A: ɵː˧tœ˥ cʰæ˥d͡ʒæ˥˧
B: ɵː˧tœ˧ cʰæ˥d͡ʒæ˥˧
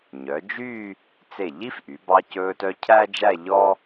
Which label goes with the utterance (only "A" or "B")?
B